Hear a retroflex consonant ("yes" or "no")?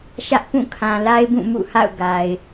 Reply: no